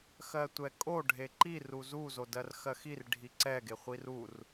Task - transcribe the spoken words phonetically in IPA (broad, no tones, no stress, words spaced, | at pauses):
xɜtʷɛkʼo ɖʱeǃi ruzu zodɜrxɜxir ɖʱiǀɛ ɡeχʷirur